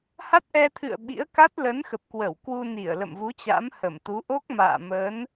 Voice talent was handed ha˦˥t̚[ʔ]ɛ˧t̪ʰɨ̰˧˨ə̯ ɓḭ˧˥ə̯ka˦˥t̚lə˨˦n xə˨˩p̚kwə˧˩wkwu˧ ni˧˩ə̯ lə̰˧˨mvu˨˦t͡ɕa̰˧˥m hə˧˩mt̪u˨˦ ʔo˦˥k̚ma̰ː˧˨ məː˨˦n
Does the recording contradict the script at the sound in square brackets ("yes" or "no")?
no